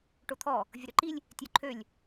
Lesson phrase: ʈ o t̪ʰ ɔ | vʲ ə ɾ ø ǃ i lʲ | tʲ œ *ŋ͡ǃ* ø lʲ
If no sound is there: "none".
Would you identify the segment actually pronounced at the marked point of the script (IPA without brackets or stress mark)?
ǃʰ